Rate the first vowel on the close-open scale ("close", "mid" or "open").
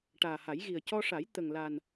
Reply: open